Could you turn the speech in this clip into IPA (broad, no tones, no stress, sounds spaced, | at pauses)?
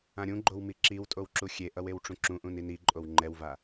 ã ɾʲ ũ ɡ͡ǃ o w m i ǁ i w tʼ o w ǁ u xʲ e ʔ ʌ w e w ʈ͡ʂ ũ ǁ ũ ʔ ũ n i n i ǃʼ o w ŋ͡ǃ ɛ w v a